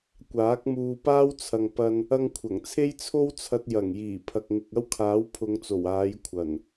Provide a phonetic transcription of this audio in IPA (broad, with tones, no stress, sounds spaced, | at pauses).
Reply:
kʷ aː˨˥ k̚ m uː˧ p aː˥ w t͡sʰ ɐ˨ ŋ p ɐ˧ n | ɐ˧ ŋ kʷʰ ɐ˨˩ ŋ t͡sʰ e˥ j t͡sʰ o˥ w t͡sʰ ɐ˧ t̚ j ɐ˨˩ ŋ j iː˨˩ pʰ ɐ˨ k̚ ŋ ɪ˨ k̚ ɐ˥ w kʰ aː˨˥ w pʰ ʊ˨˧ ŋ t͡s o˨˩ w aː˨˧ j kʷʰ ɐ˨˩ n